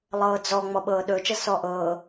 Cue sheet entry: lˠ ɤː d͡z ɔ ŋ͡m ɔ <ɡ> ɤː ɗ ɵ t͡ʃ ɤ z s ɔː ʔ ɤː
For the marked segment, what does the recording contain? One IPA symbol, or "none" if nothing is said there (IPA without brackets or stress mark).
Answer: ɓ